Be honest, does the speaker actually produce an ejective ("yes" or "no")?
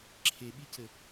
no